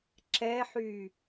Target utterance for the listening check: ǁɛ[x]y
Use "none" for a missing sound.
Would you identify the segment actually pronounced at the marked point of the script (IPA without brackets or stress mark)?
ħ